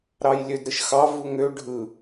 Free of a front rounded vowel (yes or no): no